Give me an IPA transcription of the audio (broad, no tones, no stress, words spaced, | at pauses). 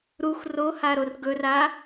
ɾux rohaɾor ɡɵra